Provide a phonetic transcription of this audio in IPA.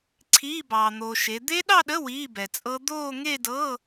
ǀʰ iː˧˥˧ b ɑː˨ n̪ oː˨ ʃ e˨˦ d̪ e˦˥ ɗ ɑ˥˧ ɗ ə˧˥˧ w iː˧˥˧ b ɛ˨ t͡sʼ ɤ˦˥ d̪ oː˥˧ ŋ e˥˧ d ɤ˧˥˧

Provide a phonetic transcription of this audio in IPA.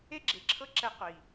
e˦ ɡ͡ǁ e˨ ǁʰ ɤ˦ ǁ ɛ˧ qʷ i˨

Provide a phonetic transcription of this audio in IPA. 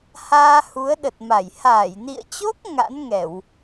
h aː˧ h u˨˦ ə̯ ɗ ə˨˩ t̚ m a˧˩ j h aː˧˩ j n ḭ˧˨ ə̯ t͡ɕ o˦˥ k̚ ŋ a̰˧˥ n ŋ ɛ˧˩˨ w

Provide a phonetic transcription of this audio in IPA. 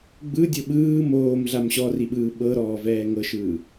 ɡ͡b ɯ dʲ ɤ ɓ ɯː m oː m ɮ a m ɕ ɔ r i ɓ ɯː ɓ ɤ ɾ ɔː v ɛː ŋ ɤ ʃ ɯː

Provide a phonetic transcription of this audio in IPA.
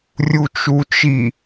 rʲ u t͡ʃ u t͡ʃ i

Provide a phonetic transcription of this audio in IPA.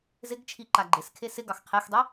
z ɪ ɡ t͡ʃʰ i ǃ a ɡ͡ǃ ɪ s kʰ e s ɪ ɡ ɑ x qʰ e x dˤ i

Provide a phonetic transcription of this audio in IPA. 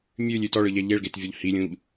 mʲ ʉ lʲ ʉ t ɔ ɭ ɯ ʎ ɛ ʎ e ɭ ɡ e t vʲ ɔ ʎ h i lʲ ũ ʎ

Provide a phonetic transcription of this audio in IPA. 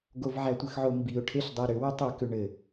ɡ o v ʕ æ tʷ ɘ x ʕ o m b i ʊ̯ ʈʰ e ɬ dˤ ɛ ɾ ʏ w ʏ tˤ u k ʏ ɳ ɘ

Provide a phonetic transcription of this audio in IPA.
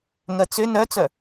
ŋ ɜ t͡s ʏ n œ t͡s œ

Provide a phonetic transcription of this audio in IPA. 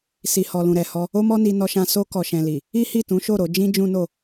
s i˨ h ɔ˨ l ũ˨ ɾ ɛ˨ h ɔ˧ | o˦ m ɔ˦ n i˧ n ɔ˧ ʃ ã˧ s o˧ k ɔ˨ ʃ ɛ̃˨ l i˨ | i˦ h i˦˨ t ũ˨˦ ʃ o˦˨ ɾ o˧ d͡ʒ ĩ˦ d͡ʒ ũ˦ n o˦˨

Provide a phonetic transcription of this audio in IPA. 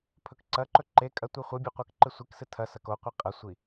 pʰ ɵ k ǀ ɐ ǃ ɵ ǃ e kʼ ɐ tʷ i χʷ ɨ bʲ o qʷ ɐ k ǃ ɨ sʷ i k s ɨ tʰ ɐ s ɐ k o qʷ ɨ qʼ ɐ sʷ i

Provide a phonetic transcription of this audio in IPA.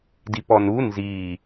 d i p ɔ n u n z i

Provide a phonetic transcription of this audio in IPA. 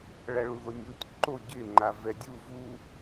ɭ a ɭ u ð o nʲ u tʲ ǃ o ɟ ɪ ŋ͡ǃ a v ɛ dʲ u v u

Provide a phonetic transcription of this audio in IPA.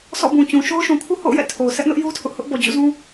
s ɔ̰˦˨ b ũ˨ t͡ɕ ũ˨ ʃ o˦ ʊ̯ ʃ ũ˨ kʰ u˦ h o̰˦˨ ʊ̯ j ɛ̰˦˨ tʰ o˨ ʊ̯ s ɛ˦ ʔ n ʊ˦ ʔ j u˦ tʰ ʊ˦ ʔ h ʊ˦ ʔ b ɔ˨ d͡ʑ ṵ˦˨ z ũ˦

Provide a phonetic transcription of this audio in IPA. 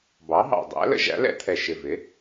b ɑ˩˥ ɦ ɑ̰˨˩ dˤ æ̰˩˥ l ə̰˩˥ ʒ æ̰˩˥ l ɛ̰˧˥ t̪ʰ ɛ˨˩ ʃ ɪ˨˩ v ɪ˩˥

